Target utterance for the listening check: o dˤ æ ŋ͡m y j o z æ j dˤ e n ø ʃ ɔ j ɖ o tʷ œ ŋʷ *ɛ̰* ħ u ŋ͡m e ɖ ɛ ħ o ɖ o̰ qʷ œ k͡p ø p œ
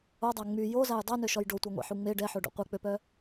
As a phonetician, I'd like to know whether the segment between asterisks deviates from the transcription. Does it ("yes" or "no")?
yes